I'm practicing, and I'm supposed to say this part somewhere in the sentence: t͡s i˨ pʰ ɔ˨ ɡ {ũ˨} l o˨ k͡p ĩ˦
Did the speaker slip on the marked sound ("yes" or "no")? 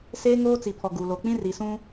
yes